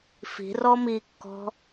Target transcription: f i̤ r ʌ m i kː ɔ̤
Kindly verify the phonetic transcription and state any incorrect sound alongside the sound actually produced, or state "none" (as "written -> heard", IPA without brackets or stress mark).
ʌ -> ɔ